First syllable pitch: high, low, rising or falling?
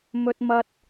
high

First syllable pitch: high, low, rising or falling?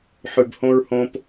low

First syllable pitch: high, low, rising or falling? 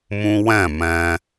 high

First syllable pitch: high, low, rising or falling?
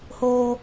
high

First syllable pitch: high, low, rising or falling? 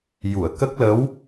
low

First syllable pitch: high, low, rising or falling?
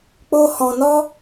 high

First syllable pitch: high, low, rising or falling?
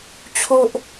high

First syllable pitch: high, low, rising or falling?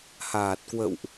low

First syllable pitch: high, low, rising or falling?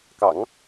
low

